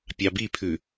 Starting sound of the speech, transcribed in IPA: pʲ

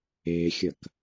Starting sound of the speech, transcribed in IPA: e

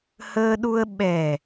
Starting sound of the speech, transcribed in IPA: h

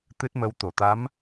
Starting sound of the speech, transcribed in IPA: t̪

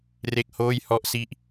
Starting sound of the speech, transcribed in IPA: r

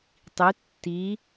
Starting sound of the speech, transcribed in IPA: tˤ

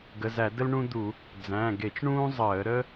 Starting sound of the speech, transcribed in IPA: ɡ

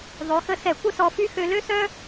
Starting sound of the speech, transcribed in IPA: ðˤ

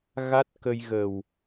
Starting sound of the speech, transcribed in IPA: ɣ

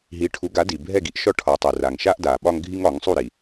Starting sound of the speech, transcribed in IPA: ɦ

